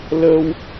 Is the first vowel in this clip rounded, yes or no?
no